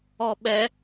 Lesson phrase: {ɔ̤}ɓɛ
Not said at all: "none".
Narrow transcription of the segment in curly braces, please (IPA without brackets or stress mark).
ɔ